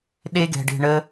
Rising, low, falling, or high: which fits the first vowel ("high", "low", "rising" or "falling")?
high